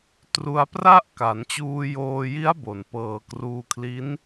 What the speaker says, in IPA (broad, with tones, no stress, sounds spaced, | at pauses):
t r u˧ a̯ p r a˥˩ ʔ k a˩˦ n t͡ɕ uː˧ j oː˧ j i˦˥ a̯ b o˩˦ n p ɤː˩˦ k r uː˧ kʰ l i˦˥ n